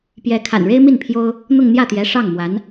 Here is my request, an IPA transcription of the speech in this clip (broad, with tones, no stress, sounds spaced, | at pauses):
p j ɛ˧˥ kʰ a̰˨˩ n ɻ e˥ ɪ̯ m i˥˩ n pʰ j o˥ ʊ̯ | n̪ ʊ˥˧ ŋ n̪ j ä˥˩ t̪ j ɛ˧˥ ʂ ɑ˥˩ ŋ m w a˧˥ n